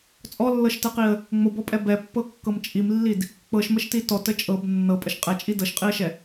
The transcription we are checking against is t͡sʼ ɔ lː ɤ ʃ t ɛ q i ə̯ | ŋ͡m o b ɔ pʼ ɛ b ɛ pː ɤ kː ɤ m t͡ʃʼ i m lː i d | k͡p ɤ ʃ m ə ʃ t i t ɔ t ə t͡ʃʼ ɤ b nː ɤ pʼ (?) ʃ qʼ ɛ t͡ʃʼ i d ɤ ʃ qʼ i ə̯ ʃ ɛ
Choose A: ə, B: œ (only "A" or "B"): A